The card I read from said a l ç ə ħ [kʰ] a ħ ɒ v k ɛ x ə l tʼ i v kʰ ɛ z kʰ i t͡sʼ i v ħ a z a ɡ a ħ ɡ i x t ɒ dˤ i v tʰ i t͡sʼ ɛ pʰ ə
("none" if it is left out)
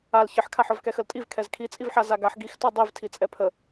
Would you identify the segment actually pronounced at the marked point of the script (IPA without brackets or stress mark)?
kʰ